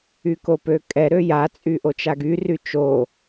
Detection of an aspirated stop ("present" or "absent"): absent